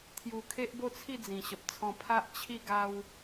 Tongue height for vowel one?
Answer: high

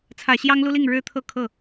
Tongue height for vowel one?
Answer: low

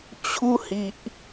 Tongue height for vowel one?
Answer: high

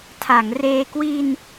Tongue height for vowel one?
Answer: low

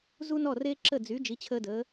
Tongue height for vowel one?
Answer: high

